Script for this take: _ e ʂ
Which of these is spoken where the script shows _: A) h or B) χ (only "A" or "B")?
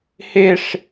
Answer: A